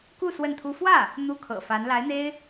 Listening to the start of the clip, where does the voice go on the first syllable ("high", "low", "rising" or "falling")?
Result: falling